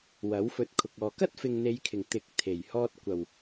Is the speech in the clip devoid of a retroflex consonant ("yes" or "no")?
yes